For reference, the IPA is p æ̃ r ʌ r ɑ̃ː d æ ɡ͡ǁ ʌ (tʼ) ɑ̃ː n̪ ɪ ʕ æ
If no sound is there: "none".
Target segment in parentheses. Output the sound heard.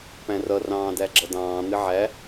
d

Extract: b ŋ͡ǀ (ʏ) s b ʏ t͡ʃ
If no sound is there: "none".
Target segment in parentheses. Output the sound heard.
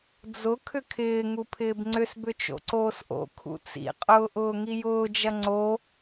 ʏ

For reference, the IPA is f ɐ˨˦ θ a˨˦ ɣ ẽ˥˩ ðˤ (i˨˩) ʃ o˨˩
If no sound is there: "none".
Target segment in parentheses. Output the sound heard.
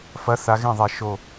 i˧˩˧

